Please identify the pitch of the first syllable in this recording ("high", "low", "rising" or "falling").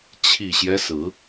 low